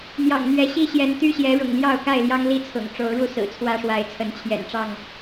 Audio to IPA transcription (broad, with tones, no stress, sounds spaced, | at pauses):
n̪ j ɑ̰˨˩ ŋ n̪ ɥ ɛ˨˦ ɕ i˥˨ ɕ j ɛ˨˦ n t̪ y˦ ɕ j ɛ˨˦ ɻ ʊ̰˨˩ ŋ l j ɑ˥˨ ʊ̯ k a˥˨ ɪ̯ l j ɑ˦ ŋ l i˥˨ t͡sʰ ʊ̰˨˩ ŋ ʈ͡ʂ o˨˦ ʊ̯ ɻ u˥˨ s ɹ̩˨˩ t͡sʰ w ä˦ ʂ w a˨˦ ɪ̯ t͡sʰ ə˨˦ n t͡ɕʰ j ɛ̰˨˩ n ʈ͡ʂ ɑ˥˨ ŋ